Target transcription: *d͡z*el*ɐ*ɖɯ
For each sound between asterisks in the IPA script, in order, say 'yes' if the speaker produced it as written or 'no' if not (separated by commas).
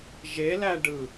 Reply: no, no